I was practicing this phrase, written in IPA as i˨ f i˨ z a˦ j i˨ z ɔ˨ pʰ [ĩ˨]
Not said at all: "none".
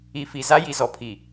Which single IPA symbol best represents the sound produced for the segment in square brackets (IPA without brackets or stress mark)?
i˨